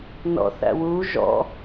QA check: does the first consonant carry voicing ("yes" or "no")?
yes